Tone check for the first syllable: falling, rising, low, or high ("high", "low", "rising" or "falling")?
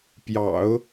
low